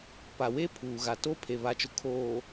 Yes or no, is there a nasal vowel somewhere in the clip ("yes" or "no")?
no